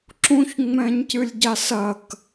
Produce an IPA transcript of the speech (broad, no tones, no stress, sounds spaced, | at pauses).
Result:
ǁ ũ ç ŋ͡m ɛ̃ː ɲ c ɨ lʲ ɟ a s ɐ k